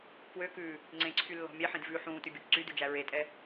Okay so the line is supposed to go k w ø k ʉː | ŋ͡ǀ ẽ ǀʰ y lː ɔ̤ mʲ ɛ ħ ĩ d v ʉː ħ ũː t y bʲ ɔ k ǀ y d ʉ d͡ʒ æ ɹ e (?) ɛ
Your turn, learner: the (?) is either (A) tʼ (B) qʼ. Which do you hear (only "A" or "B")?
A